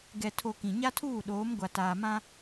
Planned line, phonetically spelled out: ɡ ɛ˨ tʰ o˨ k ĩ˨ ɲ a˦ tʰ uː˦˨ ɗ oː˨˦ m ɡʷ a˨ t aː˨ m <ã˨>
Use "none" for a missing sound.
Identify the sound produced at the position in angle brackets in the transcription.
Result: ã˦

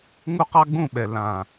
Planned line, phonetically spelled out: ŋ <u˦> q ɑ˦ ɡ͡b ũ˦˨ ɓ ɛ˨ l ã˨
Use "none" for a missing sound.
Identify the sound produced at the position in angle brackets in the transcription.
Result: u˦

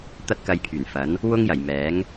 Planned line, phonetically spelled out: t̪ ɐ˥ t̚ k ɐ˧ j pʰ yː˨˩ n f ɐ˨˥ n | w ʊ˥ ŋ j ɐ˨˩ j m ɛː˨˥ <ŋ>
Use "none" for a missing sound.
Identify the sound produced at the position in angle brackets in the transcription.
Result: ŋ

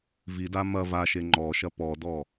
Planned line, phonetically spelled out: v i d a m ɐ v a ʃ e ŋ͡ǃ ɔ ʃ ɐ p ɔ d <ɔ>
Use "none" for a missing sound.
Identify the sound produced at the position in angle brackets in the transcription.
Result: ɔ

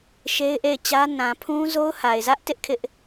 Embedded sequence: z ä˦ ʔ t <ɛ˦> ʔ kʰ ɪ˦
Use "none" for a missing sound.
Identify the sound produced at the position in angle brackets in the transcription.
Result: ɪ˦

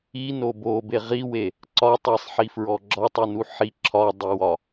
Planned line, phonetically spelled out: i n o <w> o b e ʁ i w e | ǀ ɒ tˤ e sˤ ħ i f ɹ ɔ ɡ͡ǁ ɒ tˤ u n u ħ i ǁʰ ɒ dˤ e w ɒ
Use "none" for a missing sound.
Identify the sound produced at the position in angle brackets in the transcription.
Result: b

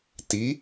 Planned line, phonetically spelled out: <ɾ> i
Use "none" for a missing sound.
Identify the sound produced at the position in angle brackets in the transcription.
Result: t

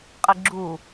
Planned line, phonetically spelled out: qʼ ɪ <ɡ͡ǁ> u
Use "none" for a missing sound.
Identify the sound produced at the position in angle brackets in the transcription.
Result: ɡ͡ǁ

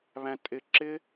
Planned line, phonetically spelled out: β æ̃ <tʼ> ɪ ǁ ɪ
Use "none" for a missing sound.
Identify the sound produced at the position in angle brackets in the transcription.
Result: tʼ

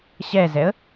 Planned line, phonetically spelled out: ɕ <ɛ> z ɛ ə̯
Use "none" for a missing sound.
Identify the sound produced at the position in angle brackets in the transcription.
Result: ɛ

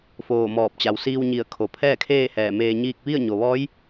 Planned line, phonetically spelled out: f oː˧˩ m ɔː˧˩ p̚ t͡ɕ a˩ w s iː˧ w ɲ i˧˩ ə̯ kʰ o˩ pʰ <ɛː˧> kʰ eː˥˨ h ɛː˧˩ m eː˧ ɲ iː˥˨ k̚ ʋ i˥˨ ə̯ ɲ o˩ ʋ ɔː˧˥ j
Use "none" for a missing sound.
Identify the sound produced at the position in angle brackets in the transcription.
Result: ɛː˥˨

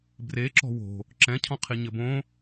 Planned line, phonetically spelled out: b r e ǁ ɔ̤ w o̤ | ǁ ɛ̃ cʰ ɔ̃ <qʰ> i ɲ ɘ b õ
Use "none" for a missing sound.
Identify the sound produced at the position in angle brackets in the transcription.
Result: qʰ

